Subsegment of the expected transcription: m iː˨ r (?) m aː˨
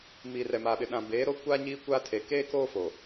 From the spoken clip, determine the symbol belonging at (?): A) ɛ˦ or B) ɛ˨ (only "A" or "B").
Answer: B